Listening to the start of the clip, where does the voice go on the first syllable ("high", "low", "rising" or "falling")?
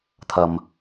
low